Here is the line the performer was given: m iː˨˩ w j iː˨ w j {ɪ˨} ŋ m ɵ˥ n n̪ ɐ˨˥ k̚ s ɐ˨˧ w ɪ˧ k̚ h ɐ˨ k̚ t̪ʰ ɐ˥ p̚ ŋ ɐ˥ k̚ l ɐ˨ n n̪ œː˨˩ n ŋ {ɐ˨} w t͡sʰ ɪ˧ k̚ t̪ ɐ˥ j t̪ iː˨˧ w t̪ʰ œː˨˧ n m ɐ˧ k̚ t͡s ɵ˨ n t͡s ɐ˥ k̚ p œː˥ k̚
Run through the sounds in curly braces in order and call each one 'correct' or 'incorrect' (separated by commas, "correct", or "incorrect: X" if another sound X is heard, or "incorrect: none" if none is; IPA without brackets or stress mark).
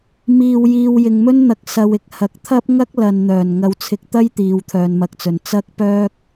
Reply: correct, incorrect: ɐ˨˧